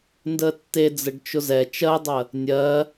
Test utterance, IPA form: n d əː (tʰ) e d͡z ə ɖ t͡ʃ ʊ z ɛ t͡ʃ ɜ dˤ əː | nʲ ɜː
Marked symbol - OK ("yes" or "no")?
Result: no